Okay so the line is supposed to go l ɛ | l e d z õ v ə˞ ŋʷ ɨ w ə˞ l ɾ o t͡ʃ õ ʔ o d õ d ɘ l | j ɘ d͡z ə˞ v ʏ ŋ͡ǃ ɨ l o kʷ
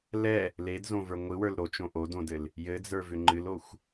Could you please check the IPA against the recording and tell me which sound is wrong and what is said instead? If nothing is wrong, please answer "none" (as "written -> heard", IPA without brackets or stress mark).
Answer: kʷ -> xʷ